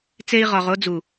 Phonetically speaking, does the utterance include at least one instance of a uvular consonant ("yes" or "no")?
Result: yes